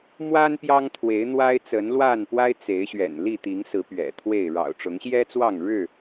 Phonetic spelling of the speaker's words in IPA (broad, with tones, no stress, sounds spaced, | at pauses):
m w a˦ n p j ɑ˦ ŋ t̪ʰ w e˨˦ ɪ̯ n̪ w a˦ ɪ̯ t͡s ə˨˦ n l w a˥˨ n p w a˦ ɪ̯ t͡s e˨˦ ɪ̯ ɕ ɥ ɛ̰˨˩ n l i˥˨ t̪ i˨˦ ŋ s ɹ̩˨˦ p ɥ ɛ̰˨˩ t̪ʰ w e˥˨ ɪ̯ ɻ ɑ̰˨˩ ʊ̯ ʈ͡ʂ ʊ˨˦ ŋ ɕ j ɛ˦ t͡s w ɑ˥˨ ŋ ɻ ɻ̩˥˨